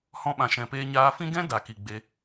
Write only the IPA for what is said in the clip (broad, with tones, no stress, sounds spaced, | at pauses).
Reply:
h ɔ̃˧ ɓ ã˨ ʃ ɛ̃˨ p eː˧ ɲ aː˧ f ĩ˦ ɡ ɛ̃˦ d a˨ k i˨ ɡ͡b e˧